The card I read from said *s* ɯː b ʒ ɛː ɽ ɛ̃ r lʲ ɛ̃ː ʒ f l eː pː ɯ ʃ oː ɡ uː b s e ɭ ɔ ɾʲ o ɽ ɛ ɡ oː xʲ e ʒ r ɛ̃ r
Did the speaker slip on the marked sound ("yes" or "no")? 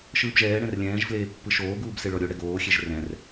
yes